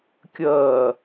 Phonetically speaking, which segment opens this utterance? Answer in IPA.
kʲ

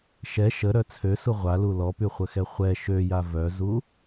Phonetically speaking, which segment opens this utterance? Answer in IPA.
ʃ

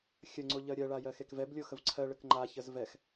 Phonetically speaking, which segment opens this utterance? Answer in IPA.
xʲ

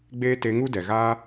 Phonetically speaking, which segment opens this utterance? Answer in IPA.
ɡ͡b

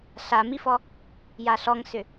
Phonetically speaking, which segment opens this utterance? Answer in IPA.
ɬ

